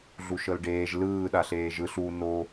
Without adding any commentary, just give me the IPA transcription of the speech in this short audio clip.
ɮuʃɤlɖeːʒ lɯː ɗaɬeːʒɯɬ u no

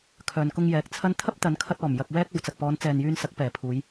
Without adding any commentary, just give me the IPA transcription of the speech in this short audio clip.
kʰœː˨n kʊ˧ŋjɛː˨˥k̚t͡sʰɐ˥n t̪ʰɐ˥p̚t̪ɐ˨˧nkʰɐ˧t̚ ɔː˨˩m jɐ˧k̚wɛː˥k̚ o˨˧wt͡sɐ˨k̚ pɔː˨˧nt͡sɛː˨njyː˧nsɐ˨˥k̚ pɛː˨˩pʰuː˨˧j

